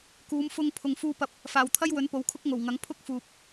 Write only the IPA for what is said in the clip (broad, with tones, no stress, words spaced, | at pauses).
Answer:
kuː˨˧mfʊ˧ŋ pʰʊ˨ŋfuː˧pɐ˧p̚ | faː˨wt̪ʰɐ˥jwɵ˨˥n po˨˥wkʰʊ˥k̚ŋo˨˩wŋɐ˨˥ŋ pʰʊ˥k̚ fuː˨p̚